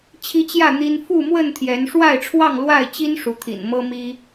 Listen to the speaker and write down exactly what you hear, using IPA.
t͡ɕʰ i˦ t͡ɕ j ä˥˨ n̪ i˦ n f u˥˨ m w ə˥˨ n t̪ʰ j ɛ˨˦ n ʂ w a˥˨ ɪ̯ ʈ͡ʂʰ w ɑ˥˨ ŋ l w a˥˨ ɪ̯ t͡ɕ i˦ n ʂ u˨˦ t̪ʰ ḭ˨˩ n m ɤ˦ m i˦

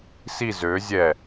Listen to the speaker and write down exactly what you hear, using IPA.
s i z ø zʲ ɛ

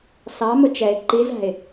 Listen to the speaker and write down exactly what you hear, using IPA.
s ɑ m ʊ t͡ʃ ɛ ɪ̯ ǃ i z æ̤ ɪ̯

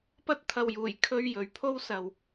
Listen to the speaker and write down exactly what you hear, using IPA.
p ɐ˥ t̚ t̪ʰ ɐ˨ w j uː˨˩ j kʰ ɵ˧ ɥ j ɵ˨˧ ɥ pʰ o˥ w s ɐ˨ w

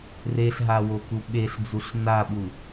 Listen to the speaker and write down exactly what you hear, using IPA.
r e ɬ ɦ a w o k u ɓ e ɬ d͡z u ɬ n a ɓ u

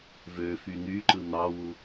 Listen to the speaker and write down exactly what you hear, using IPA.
v ø f y n̪ y ǃ ɯ n̪ ɑ w u

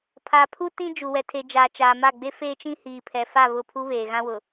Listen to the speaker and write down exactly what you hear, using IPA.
pʰ a˨ pʰ u˦ t ĩ˦ d͡ʒ u˨ w ɛ˨ tʰ e˨ d͡ʒ aː˨ t͡ʃ aː˨ m a˦˨ ɡ͡b e˦ f eː˦ t͡ʃ ĩ˦ h iː˨ pʰ ɛ˨ f a˦˨ β ʊ˦˨ pʰ u˦ β eː˨ ɣ ã˦ w ʊ˨

